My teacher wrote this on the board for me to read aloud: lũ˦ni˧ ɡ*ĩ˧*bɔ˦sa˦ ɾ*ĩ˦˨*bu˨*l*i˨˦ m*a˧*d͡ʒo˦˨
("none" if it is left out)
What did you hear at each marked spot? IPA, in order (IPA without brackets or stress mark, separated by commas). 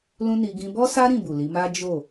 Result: ĩ˧, ĩ˦˨, l, a˦